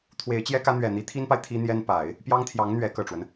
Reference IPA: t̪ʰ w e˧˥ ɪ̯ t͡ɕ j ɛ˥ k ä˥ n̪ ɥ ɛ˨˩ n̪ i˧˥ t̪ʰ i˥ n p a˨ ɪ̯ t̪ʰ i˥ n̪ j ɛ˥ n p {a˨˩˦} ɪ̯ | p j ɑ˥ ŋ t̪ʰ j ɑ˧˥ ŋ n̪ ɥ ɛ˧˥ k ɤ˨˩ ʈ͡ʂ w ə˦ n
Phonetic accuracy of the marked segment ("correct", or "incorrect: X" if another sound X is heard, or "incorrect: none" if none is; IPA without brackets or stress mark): correct